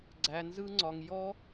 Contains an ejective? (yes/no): no